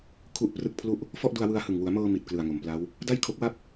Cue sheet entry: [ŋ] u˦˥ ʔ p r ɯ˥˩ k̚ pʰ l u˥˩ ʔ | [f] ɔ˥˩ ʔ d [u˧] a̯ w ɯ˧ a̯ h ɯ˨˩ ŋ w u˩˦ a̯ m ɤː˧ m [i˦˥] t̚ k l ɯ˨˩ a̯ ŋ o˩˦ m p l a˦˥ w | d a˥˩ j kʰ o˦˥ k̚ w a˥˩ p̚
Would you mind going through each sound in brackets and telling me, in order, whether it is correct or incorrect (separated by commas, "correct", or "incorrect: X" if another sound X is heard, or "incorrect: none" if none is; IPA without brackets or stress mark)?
incorrect: kʰ, correct, correct, incorrect: i˨˩